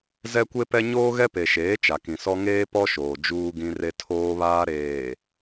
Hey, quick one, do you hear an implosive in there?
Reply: no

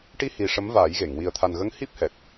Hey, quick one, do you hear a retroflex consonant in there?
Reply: yes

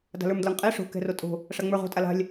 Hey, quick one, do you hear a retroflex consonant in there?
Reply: yes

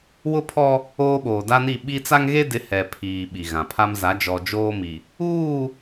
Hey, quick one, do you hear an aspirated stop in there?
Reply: yes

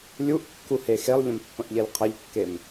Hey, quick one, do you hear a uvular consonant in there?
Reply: yes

